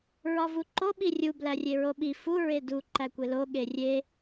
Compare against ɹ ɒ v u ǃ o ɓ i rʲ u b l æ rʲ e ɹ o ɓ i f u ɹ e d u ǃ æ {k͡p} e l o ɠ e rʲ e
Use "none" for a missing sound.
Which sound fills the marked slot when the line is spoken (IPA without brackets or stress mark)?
kʷ